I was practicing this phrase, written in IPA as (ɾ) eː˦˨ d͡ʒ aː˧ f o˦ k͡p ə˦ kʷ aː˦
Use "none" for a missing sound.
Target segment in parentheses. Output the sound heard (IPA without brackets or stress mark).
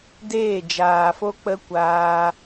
d